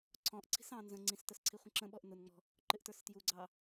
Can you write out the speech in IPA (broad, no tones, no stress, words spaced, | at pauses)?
ǀʰɔ̃ʔǀʰi̤s ɑ̃ nzə̃ ŋ͡ǀĩstəs ǀʰiχʷə̃ǁə̃ɓɔʔ nʊnŋ͡mɔ̤ | ǃɪʔtə˞stjuɡ͡ǀɑ